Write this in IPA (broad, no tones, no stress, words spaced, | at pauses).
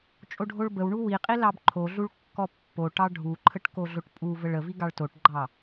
t͡ʃʼoɖʱoɭbəwɳu wiqʼi lɑbǃʰoɮuɭ kːɔpːoʈɑ ɖʱuǃʰəʈ koɮoʈpʼuvəɭ əvi ɡɑɭtoʈɡ͡ǃɑ